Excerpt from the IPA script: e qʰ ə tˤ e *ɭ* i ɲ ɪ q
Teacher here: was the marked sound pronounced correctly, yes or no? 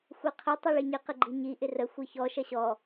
yes